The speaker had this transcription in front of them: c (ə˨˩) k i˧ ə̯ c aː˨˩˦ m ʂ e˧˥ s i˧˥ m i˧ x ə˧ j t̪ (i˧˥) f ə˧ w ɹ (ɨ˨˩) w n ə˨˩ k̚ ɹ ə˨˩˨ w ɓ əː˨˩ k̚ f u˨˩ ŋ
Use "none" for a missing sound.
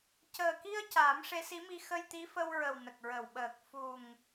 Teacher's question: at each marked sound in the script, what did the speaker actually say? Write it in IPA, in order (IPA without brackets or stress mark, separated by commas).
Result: əː˨˩, i˧˥, ə˨˩